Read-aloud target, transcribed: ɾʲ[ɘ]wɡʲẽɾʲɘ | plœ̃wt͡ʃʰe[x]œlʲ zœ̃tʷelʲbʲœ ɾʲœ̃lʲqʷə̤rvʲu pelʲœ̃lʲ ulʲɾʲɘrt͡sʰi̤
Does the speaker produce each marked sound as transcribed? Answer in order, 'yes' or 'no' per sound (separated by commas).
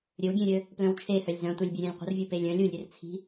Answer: yes, no